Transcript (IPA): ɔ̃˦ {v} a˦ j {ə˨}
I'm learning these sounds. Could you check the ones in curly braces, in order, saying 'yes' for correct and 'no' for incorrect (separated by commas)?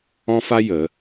no, no